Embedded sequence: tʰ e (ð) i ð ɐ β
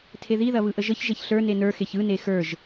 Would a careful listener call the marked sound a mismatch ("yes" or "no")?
no